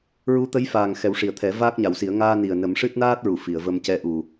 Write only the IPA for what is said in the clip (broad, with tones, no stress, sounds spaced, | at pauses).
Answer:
ɹ u˧˥ t̪ ə˧˥ j f aː˨˩ ŋ x ɛ˨˩˦ w ʂ i˨˩ ə̯ t̪ʰ ɛ˨˩˦ v aː˦˥ k̚ ɲ a˨˩˦ w s i˨˩˦ ə̯ ŋ aː˧ n i˨˩ ə̯ n ə˨˩˦ m ʂ ɨ˦˥ t̚ n aː˦˥ t̚ ɹ u˨˩˨ f i˨˩˨ ə̯ v ə˧ m c ɛ˧ ʔ u˨˩